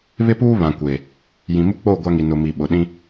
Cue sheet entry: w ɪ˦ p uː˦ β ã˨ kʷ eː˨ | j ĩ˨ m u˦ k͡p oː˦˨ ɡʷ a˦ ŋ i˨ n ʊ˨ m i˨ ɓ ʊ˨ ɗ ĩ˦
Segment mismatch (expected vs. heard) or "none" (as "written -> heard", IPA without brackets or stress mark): w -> β